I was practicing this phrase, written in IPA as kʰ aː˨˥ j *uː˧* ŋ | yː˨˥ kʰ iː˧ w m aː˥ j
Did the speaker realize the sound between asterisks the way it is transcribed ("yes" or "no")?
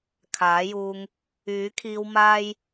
yes